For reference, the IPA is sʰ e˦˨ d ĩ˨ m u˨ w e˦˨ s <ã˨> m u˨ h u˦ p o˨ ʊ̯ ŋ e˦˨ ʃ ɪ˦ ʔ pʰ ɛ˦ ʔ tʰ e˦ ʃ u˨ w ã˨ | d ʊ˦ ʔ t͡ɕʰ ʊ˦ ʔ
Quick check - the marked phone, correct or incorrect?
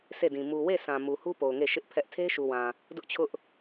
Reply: correct